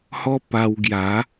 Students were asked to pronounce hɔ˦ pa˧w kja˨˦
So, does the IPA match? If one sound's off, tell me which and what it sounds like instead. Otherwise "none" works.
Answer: k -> ɡ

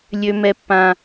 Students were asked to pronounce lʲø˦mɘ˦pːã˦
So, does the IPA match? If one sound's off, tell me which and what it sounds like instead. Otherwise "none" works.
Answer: ɘ˦ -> ɛ˦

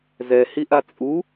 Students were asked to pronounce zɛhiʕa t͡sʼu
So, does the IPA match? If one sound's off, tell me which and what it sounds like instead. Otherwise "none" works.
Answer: ʕ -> ʔ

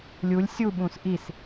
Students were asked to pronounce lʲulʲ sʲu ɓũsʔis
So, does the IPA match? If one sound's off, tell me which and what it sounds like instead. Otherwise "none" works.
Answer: none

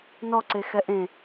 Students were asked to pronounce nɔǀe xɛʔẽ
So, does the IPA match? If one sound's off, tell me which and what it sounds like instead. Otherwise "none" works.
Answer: none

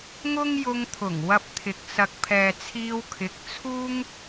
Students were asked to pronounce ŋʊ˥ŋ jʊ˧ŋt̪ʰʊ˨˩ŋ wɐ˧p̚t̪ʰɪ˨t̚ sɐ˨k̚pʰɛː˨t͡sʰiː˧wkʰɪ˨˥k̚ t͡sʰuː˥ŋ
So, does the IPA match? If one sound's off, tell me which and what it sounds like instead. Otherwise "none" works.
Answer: t̚ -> k̚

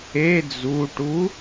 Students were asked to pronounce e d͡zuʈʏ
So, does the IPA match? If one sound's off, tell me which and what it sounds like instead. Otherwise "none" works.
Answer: ʏ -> u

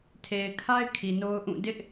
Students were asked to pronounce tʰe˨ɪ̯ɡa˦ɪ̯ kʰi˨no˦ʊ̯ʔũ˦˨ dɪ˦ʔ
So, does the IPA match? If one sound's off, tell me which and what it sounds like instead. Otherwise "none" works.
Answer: ɡ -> kʰ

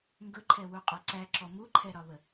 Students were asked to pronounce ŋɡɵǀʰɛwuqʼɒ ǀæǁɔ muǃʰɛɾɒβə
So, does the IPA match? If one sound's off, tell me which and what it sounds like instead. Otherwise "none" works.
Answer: ǀʰ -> ǃʰ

